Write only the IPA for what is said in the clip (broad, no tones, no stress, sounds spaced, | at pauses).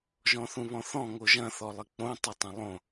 ʒ ɔ̃ θ ũ β ɔ̃ θ ɔ̃ ŋ o ʒ ɐ̃ θ ɔ lˠ ɪ k͡p õ tˤ ɪ tˤ ɐ̃ lˠ õ